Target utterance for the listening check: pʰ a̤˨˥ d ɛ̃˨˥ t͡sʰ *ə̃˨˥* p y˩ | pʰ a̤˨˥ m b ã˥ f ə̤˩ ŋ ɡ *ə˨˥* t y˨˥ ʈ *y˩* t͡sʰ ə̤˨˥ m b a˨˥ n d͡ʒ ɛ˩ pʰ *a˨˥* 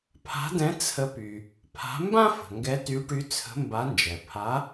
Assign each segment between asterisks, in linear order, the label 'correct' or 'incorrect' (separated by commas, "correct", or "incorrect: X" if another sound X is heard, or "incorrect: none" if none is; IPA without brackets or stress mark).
incorrect: ə˨˥, incorrect: ɛ˨˥, incorrect: y˨˥, correct